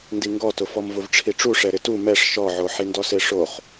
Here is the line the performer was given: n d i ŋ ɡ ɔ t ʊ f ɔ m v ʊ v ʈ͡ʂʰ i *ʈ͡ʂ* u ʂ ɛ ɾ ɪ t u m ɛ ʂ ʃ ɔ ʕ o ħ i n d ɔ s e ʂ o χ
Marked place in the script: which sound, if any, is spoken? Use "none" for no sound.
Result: ʈ͡ʂ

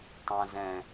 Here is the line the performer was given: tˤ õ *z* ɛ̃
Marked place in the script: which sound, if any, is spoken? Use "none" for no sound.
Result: z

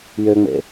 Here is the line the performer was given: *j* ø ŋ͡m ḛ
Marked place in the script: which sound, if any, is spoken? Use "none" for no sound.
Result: j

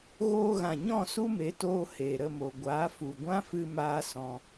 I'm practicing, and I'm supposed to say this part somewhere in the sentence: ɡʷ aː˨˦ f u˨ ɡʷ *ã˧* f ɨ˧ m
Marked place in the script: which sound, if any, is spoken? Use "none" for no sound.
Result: ã˦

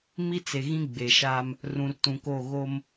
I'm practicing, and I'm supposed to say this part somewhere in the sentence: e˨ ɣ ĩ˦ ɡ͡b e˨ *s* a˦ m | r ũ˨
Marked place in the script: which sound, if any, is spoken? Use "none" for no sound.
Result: ʃ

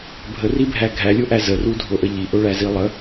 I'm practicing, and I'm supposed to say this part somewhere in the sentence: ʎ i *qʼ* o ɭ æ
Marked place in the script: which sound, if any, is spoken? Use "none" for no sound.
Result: ʔ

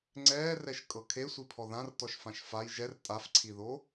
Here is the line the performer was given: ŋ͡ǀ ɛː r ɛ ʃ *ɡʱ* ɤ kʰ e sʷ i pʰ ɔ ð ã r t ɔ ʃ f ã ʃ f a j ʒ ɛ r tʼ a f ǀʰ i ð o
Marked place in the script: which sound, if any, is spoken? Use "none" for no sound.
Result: kʼ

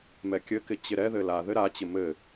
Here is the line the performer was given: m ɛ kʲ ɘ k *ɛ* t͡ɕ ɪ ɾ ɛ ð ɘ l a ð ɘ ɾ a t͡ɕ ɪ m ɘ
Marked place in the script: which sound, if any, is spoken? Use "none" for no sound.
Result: ɪ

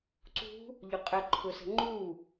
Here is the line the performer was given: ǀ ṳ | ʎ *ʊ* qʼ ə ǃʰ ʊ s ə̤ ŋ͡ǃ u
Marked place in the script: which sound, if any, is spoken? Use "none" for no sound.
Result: ʊ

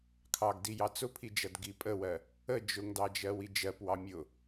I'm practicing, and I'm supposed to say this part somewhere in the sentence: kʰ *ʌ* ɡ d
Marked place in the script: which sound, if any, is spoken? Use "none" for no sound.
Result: ɑ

